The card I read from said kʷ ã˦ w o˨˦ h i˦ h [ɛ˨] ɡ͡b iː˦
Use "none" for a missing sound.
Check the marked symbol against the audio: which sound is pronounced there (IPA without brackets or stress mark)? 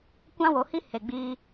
e˨